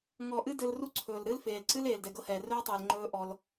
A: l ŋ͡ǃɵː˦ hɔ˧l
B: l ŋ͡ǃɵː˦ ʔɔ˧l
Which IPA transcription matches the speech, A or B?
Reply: B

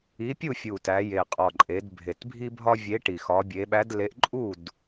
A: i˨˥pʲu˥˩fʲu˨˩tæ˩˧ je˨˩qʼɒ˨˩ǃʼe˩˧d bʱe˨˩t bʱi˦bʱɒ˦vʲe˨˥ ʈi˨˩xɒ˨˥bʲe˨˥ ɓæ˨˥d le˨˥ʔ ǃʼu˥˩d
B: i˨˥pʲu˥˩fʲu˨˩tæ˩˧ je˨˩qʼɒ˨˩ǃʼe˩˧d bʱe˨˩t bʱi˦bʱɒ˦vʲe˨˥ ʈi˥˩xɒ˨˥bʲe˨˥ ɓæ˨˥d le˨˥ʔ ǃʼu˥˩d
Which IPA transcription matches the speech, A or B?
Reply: A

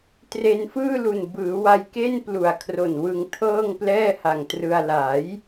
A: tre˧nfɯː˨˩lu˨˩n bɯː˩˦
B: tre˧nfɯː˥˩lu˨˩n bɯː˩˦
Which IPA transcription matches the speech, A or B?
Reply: B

